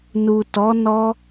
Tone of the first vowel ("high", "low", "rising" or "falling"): low